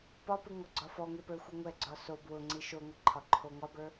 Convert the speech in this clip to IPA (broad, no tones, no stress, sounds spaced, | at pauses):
p ɒ p ɯ ŋ ɒ ɡ͡ǀ ɒ f ɔ ŋ e p ə˞ xʷ ɯ ŋʷ ɛ ɡ͡ǀ ɒ s o b w ʊ ŋ͡ǀ i ʃ o ŋʷ ɯ ǃʰ ɒ ǃʰ o ŋ ɒ b ə˞